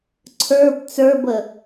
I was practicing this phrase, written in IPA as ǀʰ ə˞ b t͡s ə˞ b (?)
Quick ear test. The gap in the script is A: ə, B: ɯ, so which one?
A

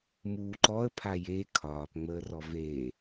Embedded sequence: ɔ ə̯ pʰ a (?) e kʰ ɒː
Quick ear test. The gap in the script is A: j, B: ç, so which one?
A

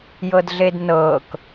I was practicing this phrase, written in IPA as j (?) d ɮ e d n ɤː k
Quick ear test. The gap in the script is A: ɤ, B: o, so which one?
A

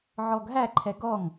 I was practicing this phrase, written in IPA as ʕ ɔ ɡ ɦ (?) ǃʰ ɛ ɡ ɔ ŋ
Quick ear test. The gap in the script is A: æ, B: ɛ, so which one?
A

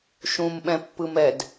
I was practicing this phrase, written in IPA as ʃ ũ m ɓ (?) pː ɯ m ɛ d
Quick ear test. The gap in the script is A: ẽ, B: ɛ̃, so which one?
B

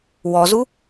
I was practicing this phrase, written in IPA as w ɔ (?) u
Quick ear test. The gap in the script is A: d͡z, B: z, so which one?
B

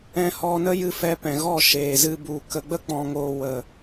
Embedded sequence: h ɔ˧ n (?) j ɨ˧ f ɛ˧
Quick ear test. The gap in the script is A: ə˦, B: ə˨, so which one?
A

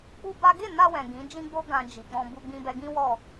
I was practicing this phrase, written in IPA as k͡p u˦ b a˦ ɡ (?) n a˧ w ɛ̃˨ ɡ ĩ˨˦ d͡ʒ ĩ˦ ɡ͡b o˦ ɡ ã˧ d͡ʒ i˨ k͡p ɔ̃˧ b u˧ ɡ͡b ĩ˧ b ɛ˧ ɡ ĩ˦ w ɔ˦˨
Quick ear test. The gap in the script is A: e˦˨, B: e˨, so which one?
A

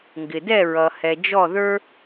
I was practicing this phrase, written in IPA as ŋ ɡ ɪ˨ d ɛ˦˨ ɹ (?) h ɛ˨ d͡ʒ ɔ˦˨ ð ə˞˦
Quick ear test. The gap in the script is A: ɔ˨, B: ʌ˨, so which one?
B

